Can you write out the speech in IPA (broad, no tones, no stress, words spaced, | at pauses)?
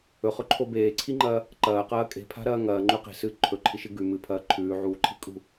ɵχɵǃʰo beːǀʰiŋ͡ǃɐː | ǃɐːqɐː kʼe̤pʰa̤ɾɐː ŋɐːŋ͡ǃʉ qe̤sɨː ǃʰɵǃʰiʃɨ ɡʉ mɨpʰɐː ǃʰʉːʕuːǃʰi kʼṳ